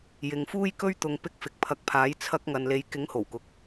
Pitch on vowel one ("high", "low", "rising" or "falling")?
low